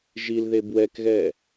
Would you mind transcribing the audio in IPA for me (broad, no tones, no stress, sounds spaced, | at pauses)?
ʒ i l ð e b w ɛ k ɣ ɛ